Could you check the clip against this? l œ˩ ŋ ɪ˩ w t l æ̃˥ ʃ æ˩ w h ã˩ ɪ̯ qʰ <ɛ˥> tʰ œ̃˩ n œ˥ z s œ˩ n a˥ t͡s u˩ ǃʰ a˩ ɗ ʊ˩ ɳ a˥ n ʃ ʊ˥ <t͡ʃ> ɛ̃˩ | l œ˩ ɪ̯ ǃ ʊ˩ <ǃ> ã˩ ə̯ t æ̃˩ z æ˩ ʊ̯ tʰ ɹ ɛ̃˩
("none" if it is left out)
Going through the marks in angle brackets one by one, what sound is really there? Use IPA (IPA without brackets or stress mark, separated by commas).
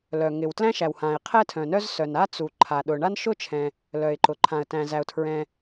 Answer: ɛ˥, t͡ʃʰ, ǃʰ